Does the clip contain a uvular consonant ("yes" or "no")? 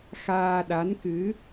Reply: no